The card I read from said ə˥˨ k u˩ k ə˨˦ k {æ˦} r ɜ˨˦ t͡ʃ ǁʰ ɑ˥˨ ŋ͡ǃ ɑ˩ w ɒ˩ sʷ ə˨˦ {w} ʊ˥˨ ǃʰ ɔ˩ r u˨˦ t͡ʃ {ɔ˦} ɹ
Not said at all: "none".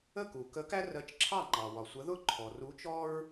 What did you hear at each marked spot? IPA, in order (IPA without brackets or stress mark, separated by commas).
æ˦, ð, ɔ˦